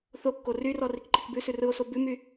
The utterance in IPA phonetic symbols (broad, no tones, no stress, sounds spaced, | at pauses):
θ o kː o r y r ɔ r i k ǃ i k b ʉ s ʉ r ɯ o̯ s o b ʉ m y